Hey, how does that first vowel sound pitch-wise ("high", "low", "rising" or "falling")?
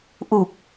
low